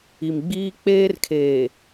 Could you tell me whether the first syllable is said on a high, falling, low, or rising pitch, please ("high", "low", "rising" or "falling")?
low